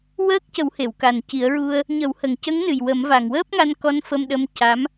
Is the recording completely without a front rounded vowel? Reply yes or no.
yes